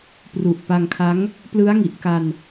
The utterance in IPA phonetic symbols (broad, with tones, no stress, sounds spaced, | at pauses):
p r u˨˩ ʔ p a˧ ŋ kʰ a˦˥ ŋ | p l ɯ˦˥ a̯ ŋ i˨˩ ʔ k a˧ n